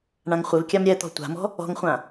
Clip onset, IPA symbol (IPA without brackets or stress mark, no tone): ɳ